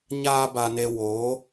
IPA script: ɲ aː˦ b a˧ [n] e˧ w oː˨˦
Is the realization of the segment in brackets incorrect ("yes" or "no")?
no